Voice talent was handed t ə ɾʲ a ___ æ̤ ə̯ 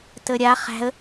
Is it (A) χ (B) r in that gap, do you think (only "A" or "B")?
A